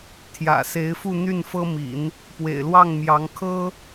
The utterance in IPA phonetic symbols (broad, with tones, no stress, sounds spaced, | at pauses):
t̪ʰ j ä̰˨˩ s e˧˥ ɪ̯ f u˥˧ n̪ y˥˩ n f ɤ˥ m ḭ˨˩˦ n | p w ḛ˨˩ ɪ̯ l w ɑ˥˩ ŋ m j ɑ˧˥ ŋ kʰ ɤ˥